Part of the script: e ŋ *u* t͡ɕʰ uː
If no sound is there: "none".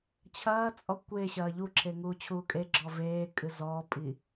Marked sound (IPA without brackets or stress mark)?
uː